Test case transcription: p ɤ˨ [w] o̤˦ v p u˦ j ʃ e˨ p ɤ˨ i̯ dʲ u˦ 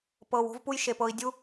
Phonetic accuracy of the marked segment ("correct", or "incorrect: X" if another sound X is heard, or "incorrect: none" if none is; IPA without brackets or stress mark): correct